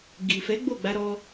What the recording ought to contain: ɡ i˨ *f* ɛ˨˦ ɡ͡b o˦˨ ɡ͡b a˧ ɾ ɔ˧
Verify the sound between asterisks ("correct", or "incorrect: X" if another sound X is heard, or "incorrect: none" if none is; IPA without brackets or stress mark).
correct